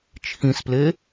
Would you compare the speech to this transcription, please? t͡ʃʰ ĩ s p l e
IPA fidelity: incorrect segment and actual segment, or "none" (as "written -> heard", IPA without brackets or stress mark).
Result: none